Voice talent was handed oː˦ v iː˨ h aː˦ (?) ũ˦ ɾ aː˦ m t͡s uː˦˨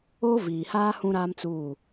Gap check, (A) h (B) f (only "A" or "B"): A